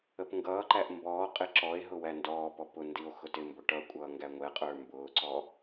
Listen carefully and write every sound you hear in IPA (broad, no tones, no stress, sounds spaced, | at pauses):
ə p ŋ ɡ ʌː ǃ æ ʔ m b ɔː qʼ ɪ ǁ ɔ e̯ ɦ ʊ w æ n d ɔː p ɔ p ʊ n d i o̯ x ʊ t ɪ m b ʊ ʈ ʌ kʷʼ ʌː ŋ ɡ æ ŋʷ ɛ qʼ ə˞ m b ʊː ǀ ɔ